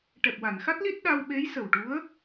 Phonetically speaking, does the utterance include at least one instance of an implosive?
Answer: yes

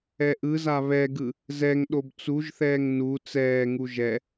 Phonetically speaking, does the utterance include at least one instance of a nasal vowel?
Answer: no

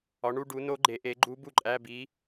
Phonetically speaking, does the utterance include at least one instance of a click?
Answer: yes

